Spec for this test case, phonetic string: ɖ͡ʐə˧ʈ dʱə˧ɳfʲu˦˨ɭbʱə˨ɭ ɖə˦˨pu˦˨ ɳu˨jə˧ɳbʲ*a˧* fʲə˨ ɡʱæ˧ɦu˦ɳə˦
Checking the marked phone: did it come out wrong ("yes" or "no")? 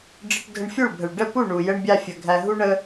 no